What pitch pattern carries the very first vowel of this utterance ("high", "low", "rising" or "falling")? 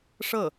falling